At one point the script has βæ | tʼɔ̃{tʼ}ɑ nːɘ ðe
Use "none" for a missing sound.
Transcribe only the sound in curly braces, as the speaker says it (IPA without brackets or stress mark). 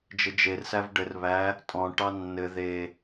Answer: ʈ